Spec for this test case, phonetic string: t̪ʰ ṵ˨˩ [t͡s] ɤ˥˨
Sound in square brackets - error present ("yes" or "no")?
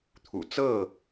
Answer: no